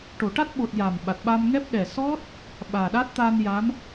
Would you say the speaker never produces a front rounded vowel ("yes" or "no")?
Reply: yes